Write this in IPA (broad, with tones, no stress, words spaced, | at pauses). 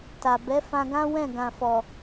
ta˨bɛ˨˦ fã˧ɡã˦ wɛ̃˦˨ ɡã˨fɔ˨